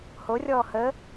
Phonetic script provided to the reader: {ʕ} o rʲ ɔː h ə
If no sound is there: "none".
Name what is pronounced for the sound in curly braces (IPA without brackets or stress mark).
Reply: h